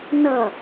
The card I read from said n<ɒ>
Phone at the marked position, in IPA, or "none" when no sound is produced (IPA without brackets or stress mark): ʌ